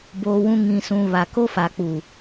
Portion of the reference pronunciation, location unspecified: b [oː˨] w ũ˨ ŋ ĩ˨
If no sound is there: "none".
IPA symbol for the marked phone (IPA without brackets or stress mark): oː˨